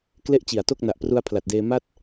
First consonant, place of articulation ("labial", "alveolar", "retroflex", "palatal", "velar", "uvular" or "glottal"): velar